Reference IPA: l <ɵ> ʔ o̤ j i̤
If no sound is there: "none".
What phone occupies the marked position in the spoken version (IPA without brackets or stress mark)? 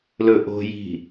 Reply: ɵ